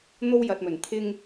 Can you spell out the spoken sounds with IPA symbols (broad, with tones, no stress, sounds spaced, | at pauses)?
n̪ o˥ w j ɐ˨ t̚ m ɵ˨˩ n t̪ʰ ɪ˧ ŋ